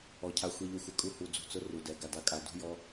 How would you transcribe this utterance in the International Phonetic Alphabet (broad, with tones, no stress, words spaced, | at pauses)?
ɔ˨cʰa˧ xʷi˨ ʎʊ˧xʷɪ˧ kʼu˧hu˨ d͡zṳ˨t͡sʊ˧ ru˨dɛ˨ ɡa˨da˧kʼa˨ dṳ˦jɔ˦